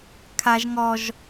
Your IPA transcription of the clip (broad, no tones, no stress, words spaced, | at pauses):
kʰaʒ ŋɔʒ